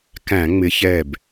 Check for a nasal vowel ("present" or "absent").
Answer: present